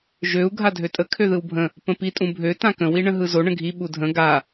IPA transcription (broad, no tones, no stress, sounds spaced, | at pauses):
ʒ ø u̯ ɡʱ a dʱ ø tʼ ə kʰ ø ð ɯ w bʱ ə̃ | p ə̃ p i tʼ ũ bʱ ø t ã k ə̃ w i ɳ ə̃ ɦ ɯ z o ɳ ə̃ ɡʱ i ɓ u dʱ ə̃ ɡ a